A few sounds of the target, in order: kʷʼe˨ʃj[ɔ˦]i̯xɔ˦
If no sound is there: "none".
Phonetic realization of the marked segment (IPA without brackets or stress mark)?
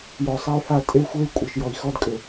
ɔ˨